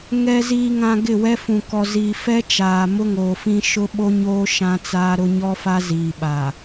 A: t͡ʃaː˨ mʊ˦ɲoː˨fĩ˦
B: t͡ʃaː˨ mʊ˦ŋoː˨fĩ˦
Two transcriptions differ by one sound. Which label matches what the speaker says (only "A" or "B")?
B